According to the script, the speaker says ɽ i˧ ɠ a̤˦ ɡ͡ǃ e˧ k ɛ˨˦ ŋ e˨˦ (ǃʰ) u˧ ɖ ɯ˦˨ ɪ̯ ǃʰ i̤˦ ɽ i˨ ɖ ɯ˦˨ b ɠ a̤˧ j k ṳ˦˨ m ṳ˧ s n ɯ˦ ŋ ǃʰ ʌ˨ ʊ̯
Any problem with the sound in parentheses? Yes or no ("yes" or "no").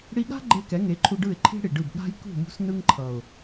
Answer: no